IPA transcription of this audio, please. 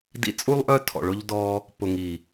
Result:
dḭ˧t͡sʼu˦lˠʔœ˦ tʰɔ̰˨ɭʊ˦ʎdɔː˦ | pʊ˨ŋi˨

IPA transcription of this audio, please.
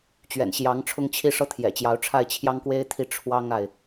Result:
t͡ɕɥɛ̰˨˩nɕjɑ˧˥ŋʈ͡ʂʰʊ˥˧ŋt͡ɕʰi˥˧ ʂɤ˥˩t̪ʰjɛ̰˨˩t͡ɕjɑ˧˥ʊ̯ ʈ͡ʂʰa˥˩ɪ̯t͡ɕʰjɑ˥ŋkwe˥ɪ̯t̪ʰi˥˩ ʈ͡ʂʰwɑ˥ŋa˨ɪ̯

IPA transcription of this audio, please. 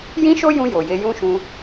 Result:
jĩ˦ʃo˦jũ˧ jo˨je˧jũ˦ʃũ˧

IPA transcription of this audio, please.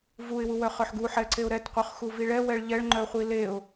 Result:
vuɪ̯wuwœχœħ ɡuħɛǀeʊ̯ ɾɛtqʷœχxuvi ɭɛwɛɭ ʎɛɭŋ͡ǃœχʷi leʊ̯

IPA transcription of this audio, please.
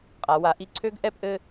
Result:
qʼa˩˧wa˩˥ ʔi˧˩ǀʰø˦˥ɡ ʔɛ˥˧pʔɘ˥˧

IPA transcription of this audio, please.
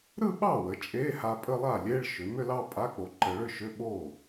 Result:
ɾɯ˥˧ɓɑ˥˩wə˩˧ t͡ʃʼe˧˥˧ha˧ pʼə˥˧lˠa˥˩lʲe˧˥˧ɭ ʃʏ˩˧mʏ˥˧lɑ˥˧ pʼa˧˥˧k͡po˧ǃə˧ ɭʏ˥˧ʃʏ˧˥˧ɓo˥˩

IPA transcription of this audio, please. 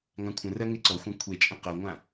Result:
ŋãkʷʰə̃rɜ ŋeǀɔxʷã kʷʰet͡ʃʼə̃ qɜŋʷã

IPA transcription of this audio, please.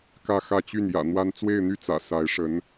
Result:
kä˥˧xä˥˧ t͡ɕy˥˩n jä̰˨˩ n̪wa˥n t͡swe˥˧ɪ̯n̪y˥˩t͡sä̰˨˩ sa˧˥ɪ̯ʂə˧˥n

